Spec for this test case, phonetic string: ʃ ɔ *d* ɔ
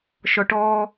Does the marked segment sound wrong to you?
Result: yes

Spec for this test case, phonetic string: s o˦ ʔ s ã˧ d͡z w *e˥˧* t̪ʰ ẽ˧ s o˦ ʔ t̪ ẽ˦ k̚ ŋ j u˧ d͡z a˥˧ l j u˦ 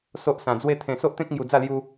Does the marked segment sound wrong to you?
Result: yes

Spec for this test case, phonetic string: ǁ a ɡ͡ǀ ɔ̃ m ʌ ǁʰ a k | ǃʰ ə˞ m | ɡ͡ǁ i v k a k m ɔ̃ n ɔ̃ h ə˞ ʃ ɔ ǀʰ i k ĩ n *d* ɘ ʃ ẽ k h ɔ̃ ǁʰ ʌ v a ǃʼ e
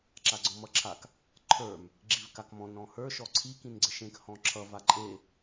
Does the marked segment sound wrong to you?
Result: yes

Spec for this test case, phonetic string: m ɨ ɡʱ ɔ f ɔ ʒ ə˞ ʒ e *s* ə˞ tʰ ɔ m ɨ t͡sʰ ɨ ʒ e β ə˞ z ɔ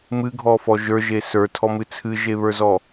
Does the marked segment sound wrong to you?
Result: no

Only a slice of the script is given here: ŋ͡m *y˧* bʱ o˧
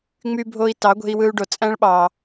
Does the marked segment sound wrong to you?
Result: no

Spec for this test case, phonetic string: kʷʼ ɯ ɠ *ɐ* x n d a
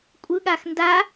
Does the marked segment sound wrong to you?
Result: yes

